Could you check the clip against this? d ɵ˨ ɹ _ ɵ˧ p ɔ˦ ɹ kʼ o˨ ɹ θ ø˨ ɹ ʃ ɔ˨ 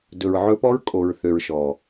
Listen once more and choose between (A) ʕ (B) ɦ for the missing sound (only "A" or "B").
A